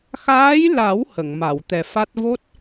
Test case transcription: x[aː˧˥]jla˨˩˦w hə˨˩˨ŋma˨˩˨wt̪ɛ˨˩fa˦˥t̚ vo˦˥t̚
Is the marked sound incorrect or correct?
correct